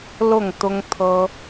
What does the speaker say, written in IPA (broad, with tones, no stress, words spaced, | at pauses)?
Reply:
lʊ˥˨ŋt̪ʊ˦ŋt̪ʰɤ˦